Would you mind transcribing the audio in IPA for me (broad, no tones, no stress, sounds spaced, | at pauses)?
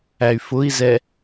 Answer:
æ y̯ f ʊ i̯ z ɛ